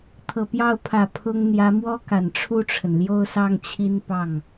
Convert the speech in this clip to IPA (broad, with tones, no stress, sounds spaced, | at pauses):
t̪ʰ ɤ˨˩ p j ɑ˥˩ ʊ̯ pʰ ä˨˩ pʰ ʊ˥ ŋ n̪ j ä˧˥ m w ɔ˥ k a˨˩ n ʈ͡ʂʰ u˥˩ ʈ͡ʂʰ ə˩ n l j o˥˧ ʊ̯ s ɑ˥˩ ŋ t͡ɕʰ i˥ n p ɑ˥˩ ŋ